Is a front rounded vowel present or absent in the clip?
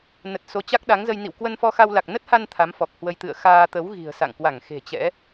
absent